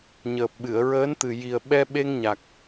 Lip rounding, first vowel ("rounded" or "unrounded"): unrounded